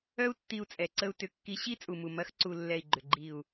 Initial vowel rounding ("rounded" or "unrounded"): rounded